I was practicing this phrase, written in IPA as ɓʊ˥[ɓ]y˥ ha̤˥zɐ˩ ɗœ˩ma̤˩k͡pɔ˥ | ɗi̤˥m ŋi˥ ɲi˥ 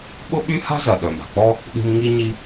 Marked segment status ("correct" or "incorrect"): correct